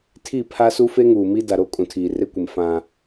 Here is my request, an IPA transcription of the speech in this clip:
tʰ i˦˨ pʰ a˦ s u˦ f e˦ ŋ uː˨ m i˦ d a˨ ɾ o˦ kʼ ũ˨ tʰ iː˨ r e˦ kʷ ɪ˨ m f ã˨

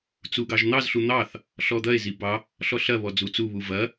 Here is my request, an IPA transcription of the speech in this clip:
t͡s u ɡ ɑ ʒ n̪ ɑ z ɬ u n̪ ɑ θ | ɬ ɔ d̪ ɐ e̯ z i b ɑ | ɬ ɔ ɬ ɐ β ɔ d͡z u t͡s u β u v ɐ

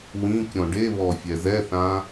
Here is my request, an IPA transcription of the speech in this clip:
w ĩ kʲ ɔ̃ ɖ e β ɔ fʲ ɛ z ɛ θ ã

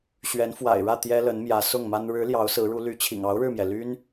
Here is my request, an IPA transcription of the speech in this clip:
ɕ ɥ ɛ˧˥ n f w a̰˨˩ ɪ̯ ɻ ä˥˩ t̪ j ɛ˥ l ə˧˥ n m j ä˧˥ s ʊ˥˩ ŋ m a˥ n ɻ ɻ̩˧˥ l j ɑ˧˥ ʊ̯ s ɹ̩˧˥ ɻ u˧˥ l y˧˥ t͡ɕʰ ḭ˨˩ ŋ ɑ˧˥ ʊ̯ ɻ ɻ̩˥˩ m j ɛ˩ l y˥ n

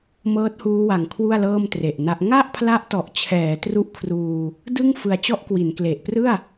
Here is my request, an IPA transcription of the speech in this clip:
m ɤː˦˥ t̚ h uː˦˥ w a˨˩ ŋ kʰ w u˥˩ a̯ l ɤː˥˩ m t r e˨˩ ʔ n a˦˥ ʔ ŋ a˥˩ ʔ pʰ l a˦˥ ʔ t ɔ˨˩ ʔ t͡ɕʰ ɛː˩˦ t r u˦˥ ʔ kʰ r uː˧ | d ɯ˥˩ ŋ f ɯ˧ a̯ t͡ɕ ɔ˥˩ ʔ k w i˩˦ n k l e˨˩ ʔ p r ɯ˥˩ a̯

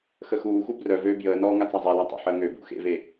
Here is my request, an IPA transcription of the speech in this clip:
x ə x uː x u b r œ v øː b j əː n ɔː ŋ a t͡s a zˤ ɛ l a tˤ ə̰ ħ əː ŋ ø b ṵ x ḛ v e

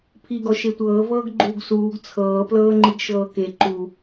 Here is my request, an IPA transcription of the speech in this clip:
pʰ i ɡ ɔ ʃ e tʷ ɤː v ɤː ɡ ɡ͡ǃ uː ɡ s uː ɡ t͡sʰ ɤː p l ɤː ŋ͡ǃ i ɡ ʃ ɤː k e ǃ u

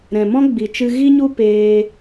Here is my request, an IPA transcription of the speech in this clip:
ɾ ɛ̃˨ m ɔ̃˧ ɡ͡b i˨ t͡ʃ ɨ˧ ɣ i˦ ɲ u˦ p eː˧

